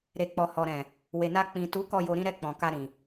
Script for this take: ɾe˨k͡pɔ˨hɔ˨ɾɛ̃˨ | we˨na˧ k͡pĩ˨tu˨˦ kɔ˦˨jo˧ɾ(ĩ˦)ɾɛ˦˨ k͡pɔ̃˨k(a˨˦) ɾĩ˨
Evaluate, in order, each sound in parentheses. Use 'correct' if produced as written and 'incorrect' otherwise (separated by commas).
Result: correct, incorrect